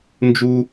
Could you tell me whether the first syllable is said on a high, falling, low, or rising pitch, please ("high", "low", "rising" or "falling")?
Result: high